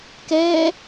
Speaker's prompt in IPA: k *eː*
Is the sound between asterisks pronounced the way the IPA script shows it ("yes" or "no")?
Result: no